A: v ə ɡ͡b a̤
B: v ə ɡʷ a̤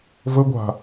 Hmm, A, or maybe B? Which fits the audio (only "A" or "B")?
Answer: B